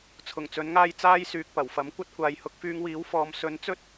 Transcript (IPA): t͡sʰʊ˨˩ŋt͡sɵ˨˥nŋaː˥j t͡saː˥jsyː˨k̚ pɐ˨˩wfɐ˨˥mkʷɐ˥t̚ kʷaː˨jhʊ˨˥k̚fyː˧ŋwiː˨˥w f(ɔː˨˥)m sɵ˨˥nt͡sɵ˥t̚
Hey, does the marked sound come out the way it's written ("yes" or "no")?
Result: no